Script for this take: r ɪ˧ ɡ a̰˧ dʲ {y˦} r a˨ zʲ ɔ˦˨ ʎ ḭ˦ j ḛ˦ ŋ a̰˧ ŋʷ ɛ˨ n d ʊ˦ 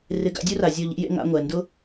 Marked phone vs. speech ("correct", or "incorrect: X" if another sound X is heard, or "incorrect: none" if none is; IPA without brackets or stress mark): incorrect: u˦